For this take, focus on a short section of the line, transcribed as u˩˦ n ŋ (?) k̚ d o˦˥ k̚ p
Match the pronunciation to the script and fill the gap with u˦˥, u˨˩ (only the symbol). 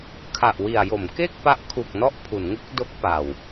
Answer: u˦˥